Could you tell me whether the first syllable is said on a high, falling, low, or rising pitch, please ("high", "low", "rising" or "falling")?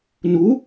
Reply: rising